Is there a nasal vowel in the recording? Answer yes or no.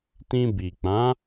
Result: yes